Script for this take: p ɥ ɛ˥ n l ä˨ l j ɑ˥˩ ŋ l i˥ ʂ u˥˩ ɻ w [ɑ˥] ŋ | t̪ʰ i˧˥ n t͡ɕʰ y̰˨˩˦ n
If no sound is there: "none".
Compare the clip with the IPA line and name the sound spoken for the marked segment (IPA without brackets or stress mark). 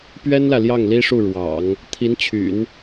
ɑ̰˨˩˦